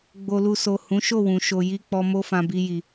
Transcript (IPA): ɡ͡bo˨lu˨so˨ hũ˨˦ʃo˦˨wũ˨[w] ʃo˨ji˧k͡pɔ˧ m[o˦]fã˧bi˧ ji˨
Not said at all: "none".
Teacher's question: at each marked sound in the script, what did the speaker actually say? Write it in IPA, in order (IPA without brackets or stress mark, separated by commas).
none, o˦